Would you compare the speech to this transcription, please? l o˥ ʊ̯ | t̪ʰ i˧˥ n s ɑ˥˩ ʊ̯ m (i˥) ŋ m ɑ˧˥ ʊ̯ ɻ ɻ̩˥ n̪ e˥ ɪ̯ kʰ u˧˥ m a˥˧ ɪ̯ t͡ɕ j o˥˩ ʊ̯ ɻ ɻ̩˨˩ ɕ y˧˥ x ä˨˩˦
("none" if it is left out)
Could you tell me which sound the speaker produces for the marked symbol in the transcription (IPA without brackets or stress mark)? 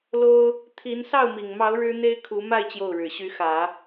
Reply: i˨˩